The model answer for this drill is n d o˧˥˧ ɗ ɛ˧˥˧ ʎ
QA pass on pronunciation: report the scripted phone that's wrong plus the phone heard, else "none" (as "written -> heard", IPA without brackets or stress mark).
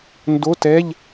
ɗ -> t